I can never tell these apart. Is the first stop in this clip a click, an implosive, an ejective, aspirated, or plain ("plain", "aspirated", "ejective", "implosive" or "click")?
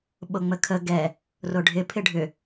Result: implosive